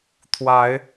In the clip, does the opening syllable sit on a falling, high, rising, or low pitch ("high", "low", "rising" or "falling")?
rising